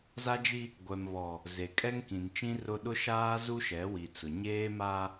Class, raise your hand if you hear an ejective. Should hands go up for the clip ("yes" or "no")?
yes